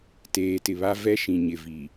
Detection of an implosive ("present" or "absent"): absent